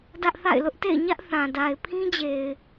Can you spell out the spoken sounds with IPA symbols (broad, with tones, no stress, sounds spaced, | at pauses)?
d ä˦ ʔ θ a̰˦˨ ɪ̯ l ʊ˦ ʔ t ḛ˦˨ ɪ̯ ɲ ä˦ ʔ θ ã˨ d a˨ ɪ̯ pʰ ĩ˦ d͡ʑ e˨ ɪ̯